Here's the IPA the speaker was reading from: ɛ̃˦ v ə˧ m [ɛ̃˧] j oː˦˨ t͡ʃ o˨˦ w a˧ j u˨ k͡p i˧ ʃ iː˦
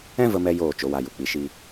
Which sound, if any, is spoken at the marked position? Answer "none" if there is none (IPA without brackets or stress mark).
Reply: ɛ˧